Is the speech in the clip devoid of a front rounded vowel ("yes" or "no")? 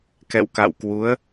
yes